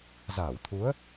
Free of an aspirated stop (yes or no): no